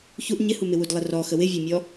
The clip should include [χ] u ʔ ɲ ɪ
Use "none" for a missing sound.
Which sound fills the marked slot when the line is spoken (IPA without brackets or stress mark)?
ç